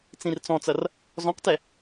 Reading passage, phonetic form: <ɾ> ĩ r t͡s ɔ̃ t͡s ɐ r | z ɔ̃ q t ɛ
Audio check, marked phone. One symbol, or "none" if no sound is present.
t͡s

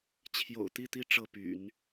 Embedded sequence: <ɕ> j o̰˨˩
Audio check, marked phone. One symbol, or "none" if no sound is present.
t͡ɕʰ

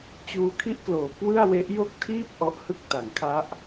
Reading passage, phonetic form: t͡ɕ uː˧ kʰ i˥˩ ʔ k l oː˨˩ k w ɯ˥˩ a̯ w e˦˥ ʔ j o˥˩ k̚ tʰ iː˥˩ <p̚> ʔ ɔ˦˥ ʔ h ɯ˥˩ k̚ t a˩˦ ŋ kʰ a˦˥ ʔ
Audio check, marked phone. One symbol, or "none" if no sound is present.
p̚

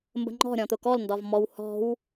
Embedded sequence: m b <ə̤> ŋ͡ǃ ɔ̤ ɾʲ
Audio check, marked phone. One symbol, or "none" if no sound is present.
ə̤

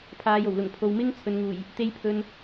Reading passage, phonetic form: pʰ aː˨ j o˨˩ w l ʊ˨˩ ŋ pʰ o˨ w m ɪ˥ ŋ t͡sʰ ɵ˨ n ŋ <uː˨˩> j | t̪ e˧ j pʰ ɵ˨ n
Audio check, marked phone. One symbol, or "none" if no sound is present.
uː˨˩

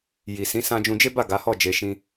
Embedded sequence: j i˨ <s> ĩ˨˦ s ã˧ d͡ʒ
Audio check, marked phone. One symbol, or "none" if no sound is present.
s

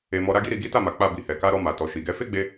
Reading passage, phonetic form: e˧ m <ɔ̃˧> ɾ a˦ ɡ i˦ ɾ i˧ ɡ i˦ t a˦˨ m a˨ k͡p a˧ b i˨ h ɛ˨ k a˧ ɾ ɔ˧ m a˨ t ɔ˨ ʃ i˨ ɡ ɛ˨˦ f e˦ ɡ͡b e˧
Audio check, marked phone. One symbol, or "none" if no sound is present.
ɔ˧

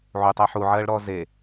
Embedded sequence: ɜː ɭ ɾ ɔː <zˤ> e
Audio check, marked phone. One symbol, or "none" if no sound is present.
z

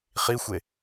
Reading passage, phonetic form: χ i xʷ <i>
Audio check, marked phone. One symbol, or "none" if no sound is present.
e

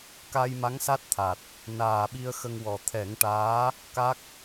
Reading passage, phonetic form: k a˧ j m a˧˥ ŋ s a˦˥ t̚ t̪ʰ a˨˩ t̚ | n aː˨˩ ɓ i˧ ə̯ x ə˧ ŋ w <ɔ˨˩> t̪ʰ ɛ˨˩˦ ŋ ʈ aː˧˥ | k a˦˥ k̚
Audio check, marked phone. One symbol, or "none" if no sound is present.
ɔ˨˩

